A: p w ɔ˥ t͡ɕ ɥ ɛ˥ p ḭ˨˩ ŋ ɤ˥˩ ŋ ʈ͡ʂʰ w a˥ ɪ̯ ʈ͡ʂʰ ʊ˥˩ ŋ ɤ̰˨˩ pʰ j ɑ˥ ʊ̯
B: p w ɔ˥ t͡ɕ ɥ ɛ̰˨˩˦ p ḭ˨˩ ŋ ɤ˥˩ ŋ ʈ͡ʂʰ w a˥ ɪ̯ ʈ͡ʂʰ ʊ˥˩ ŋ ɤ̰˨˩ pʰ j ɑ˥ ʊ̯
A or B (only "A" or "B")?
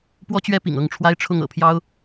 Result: A